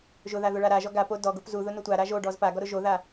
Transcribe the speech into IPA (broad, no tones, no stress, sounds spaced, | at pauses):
ʒ ʊ ð a ð ʊ ɭ a ɾ a ʒ ɔ ɡ a p o d ɔ ɡ o p z u ð ʊ n ʊ tʷ a ɾ a ʒ o ɖ ɔ z p a ɡ ɔ ɾ ʊ ʒ o ð a